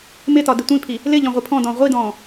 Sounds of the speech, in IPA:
m ɪ t ɒ d ɪ tʷ ĩ pʰ i | l ɪ ʎ ɔ̃ ʁʷ i pʰ ɔ̃ d ɔ̃ ʁʷ i d ɔ̃ː

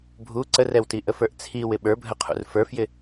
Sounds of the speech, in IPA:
bʱ u ǀ ə r ɛ w t i ʔ ə f ə˞ ʔ t͡sʰ i w ɪ ɓ ə˞ bʱ ə qʰ ṵ r f ə˞ f j ɪ

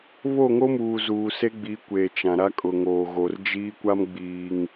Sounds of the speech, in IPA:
β o˦˨ ŋ o˦ m uː˨ z uː˨ s e˦ ɡ͡b i˨˦ kʷ eː˨ t͡ʃ ã˨ ɾ a˦ kʼ ʊ˨ ŋ oː˨ ɣ o˨ r d͡ʒ iː˦ kʷ a˦ m ɡ͡b iː˨ ŋ

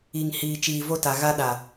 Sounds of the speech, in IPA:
i˨ ŋ h iː˨ t͡ʃ iː˨ v o˦ t a˨ ɣ a˦ ɗ a˨

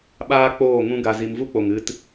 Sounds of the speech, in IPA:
ɓ aː˦ k͡p oː˦˨ ŋ ũ˦ ɡ a˧ z i˧ m v u˦ k͡p o˨ ŋ ɨ˧ t

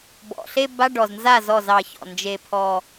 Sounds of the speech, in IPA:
b ɔ̰˩ ɬ e˥˧ b a˧˥˧ ɖ ɔ˩ z n z a˥˩ z ɔ˥˩ z ɑ˧˩ ç ɔ̰˩ n d͡ʒ e˧˩ pʰ ɔ˧˩

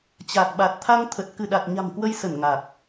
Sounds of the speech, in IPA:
t͡ɕ a˨˩ k̚ ɓ a˨˩ t̚ t̪ʰ a˧ ŋ t̪ʰ ə˨˩ t̚ k ɨ˧˩ ɗ a˨˩ t̚ ɲ a̤˨˩ m k w ə˧ j s ə˧˩ n ŋ a˨˩ k̚

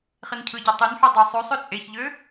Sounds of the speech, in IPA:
χ i n cʰ ɯ ɟ e tˤ y n ħ u dˤ u sˤ ø sˤ ø t͡sʼ e ç ʎ ø

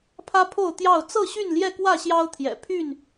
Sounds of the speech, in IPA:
pʰ ä˦ pʰ o˥˨ ʊ̯ t̪ j ɑ˥˨ ʊ̯ t͡s ɤ˥˨ ɕ y˥˨ n l j ɛ˥˨ k w ä˥˨ ɕ j ɑ˦ ʊ̯ t̪ʰ j ɛ̰˨˩ pʰ y˥˨ n

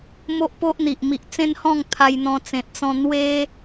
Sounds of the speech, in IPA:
m o˦ ʔ p o˦ ʔ n̪ i˨ ʔ m i˨ ʔ t͡s ẽ˦ n h ɔ̃˥˧ ŋ t̪ʰ a˧ j n̪ ɔ̃˧ t͡s ẽ˨ t̚ t͡s ɔ̃˧ n̪ w e˦

